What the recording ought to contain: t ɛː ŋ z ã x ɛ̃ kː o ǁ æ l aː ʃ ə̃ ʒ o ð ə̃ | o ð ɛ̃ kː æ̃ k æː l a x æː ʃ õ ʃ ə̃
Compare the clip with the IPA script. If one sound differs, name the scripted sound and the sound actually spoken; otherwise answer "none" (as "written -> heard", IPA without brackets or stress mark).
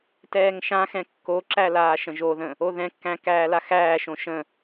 z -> ʃ